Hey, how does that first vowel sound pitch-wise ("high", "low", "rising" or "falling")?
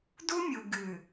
high